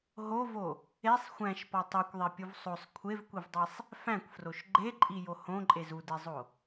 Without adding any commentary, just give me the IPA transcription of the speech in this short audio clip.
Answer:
ɦ o v o | e sˤ xʷ æ̃ ʃ p ɒ tˤ o kʷ ðˤ e pʲ u v sˤ o sˤ kʷʰ e v kʷ i v dˤ i sˤ | f æ̃ kʷ f r o ʃ ɡ͡ǃ e ǃʼ i j o h õ ǃʼ e z u d e zˤ o

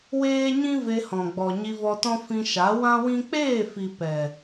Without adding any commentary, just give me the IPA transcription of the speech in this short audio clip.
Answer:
w eː˦ ɲ ĩ˦ v e˧ h ɔ̃˨ ɡ͡b ɔ˨ ɲ i˧ v ɔ˧ t ɔ̃˦ f ĩ˧ ʃ a˨˦ w ã˦ w ĩ˦ k͡p eː˦˨ f i˨ p ɛ˨

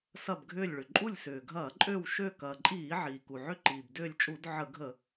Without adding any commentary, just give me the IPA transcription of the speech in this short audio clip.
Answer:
s ɐ˦˨ b ɡʱ ʏː˦˨ lʲ ɭ ʏ˩ ǃʼ u˦˨ lʲ s ʏː˩ ɡʱ ɐː˧˩˧ ǃʼ ø˦˨ w ʃ ø˦˨ k ɐː˩ ǃʼ iː˧˩˧ ʕ iː˩ k u˩ ʕ ʏ˦˨ ǃ iː˩ b d ʏː˦˨ lʲ t͡ʃʼ u˧˩˧ d ʕ ə˧˩˧ ɡʱ ə˧˩˧

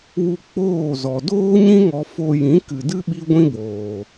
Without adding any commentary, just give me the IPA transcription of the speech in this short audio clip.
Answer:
w u˧ k͡p oː˦˨ z ɔ˨ d oː˦ ɲ ĩ˦ ŋ ɔ˧ f o˧ j ĩ˨˦ k ɨ˨ d ɨ˦ ɓ i˦ ɡʷ ĩ˦ b oː˨

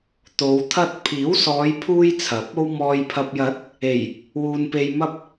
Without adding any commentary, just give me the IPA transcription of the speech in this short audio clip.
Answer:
t̪ o˨˧ w t̪ʰ ɐ˥ t̚ pʰ iː˨˥ w s ɔː˨˧ j pʰ uː˧ j t͡sʰ ɐ˨˥ p̚ o˥ w m ɔː˨ j pʰ ɐ˨ p̚ j ɐ˨˥ t̚ | e˨˩ j | w uː˨ n p e˨ j m ɐ˧ p̚

